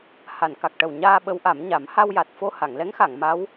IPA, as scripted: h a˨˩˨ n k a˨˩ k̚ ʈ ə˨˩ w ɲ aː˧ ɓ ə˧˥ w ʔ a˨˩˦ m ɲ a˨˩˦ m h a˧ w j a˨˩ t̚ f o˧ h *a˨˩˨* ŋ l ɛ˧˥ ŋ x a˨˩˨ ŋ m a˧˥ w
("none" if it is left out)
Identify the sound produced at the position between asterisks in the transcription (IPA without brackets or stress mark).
a˨˩˨